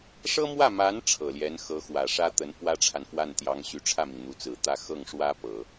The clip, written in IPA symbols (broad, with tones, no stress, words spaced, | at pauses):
ʂɤ˥mwä˥˩ma˧˥n ʈ͡ʂʰɤ˨˩ljɛ˧˥n xɤ˧˥xwä˨˩ʂä˥t̪ə˧˥n pwä˥ʈ͡ʂʰa˨nfwa˥˩nt̪jɑ˧˥ŋ ɕy˧˥ʈ͡ʂʰä˥˩mi˩ŋ n̪u˧˥t͡sɹ̩˨˩t̪ä˥˧ xɤ˥˩ŋʂwä˥pɤ˨˩˦